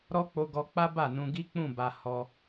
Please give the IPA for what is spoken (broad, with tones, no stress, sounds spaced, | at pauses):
ɾ ɔ˦ k͡p o˧ ɡ ɔ˧ k͡p a˦ b a˦˨ n ũ˧ ɡ i˦ k͡p ũ˦˨ b a˨ h ɔ˧